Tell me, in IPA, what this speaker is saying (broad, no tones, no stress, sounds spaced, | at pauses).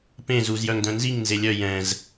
p ẽ z u z j œ ŋ d œ̃ n z i ŋ n z e lʲ œ j ɛ̃ z